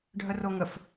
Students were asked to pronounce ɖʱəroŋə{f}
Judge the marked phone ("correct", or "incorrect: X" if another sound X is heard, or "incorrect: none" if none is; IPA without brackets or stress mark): correct